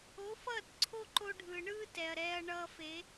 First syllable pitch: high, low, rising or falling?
rising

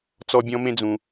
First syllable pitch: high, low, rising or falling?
high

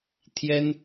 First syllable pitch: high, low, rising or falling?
high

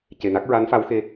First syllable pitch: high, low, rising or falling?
low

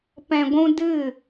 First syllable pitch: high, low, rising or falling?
low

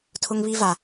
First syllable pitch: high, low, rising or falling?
high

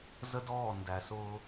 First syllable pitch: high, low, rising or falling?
high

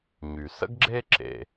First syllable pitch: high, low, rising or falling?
low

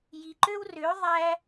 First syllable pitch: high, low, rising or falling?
low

